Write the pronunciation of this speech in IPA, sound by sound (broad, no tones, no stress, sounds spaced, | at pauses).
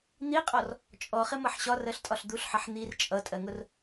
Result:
n̪ i qʼ ɔ r | t͡ʃʼ ɔ χ ɪ m ʌ ħ ɕ ɒ r ɜ ɬ tʼ ɒ ɬ d̪ u ɬ ħ ʌ ħ n̪ i r t͡ʃʼ ʌ tʼ ɜ ŋ ʊ r